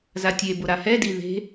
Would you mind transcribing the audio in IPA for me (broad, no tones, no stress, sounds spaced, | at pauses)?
z a tʲ e b ʊ ɾ a h ɛ d i ð e̤